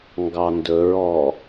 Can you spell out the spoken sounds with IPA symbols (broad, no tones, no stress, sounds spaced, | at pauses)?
ŋ ɡ ɑ n d ɵ ɹ ɔ